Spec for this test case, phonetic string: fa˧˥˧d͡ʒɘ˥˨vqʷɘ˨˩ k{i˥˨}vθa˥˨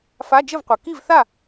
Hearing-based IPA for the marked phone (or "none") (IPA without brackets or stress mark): i˥˨